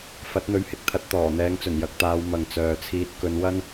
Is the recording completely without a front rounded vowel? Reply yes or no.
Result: no